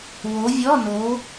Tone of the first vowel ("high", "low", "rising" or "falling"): rising